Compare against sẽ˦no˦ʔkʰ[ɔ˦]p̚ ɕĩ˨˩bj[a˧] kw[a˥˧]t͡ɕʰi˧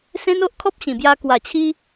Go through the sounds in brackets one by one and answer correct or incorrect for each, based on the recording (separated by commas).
correct, correct, incorrect